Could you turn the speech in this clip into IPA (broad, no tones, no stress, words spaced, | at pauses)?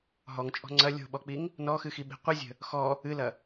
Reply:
ɦɔŋt͡ʃʼɔ̤ ŋ͡ǀɐ lʲo̤ɓɔk͡piŋ | nɔxɨxiɓi̤ qʷɨzʲə̤ | xɔ | ɨlɐ